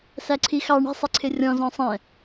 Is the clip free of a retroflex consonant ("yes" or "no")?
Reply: no